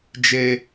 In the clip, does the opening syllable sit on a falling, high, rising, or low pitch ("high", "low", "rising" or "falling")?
high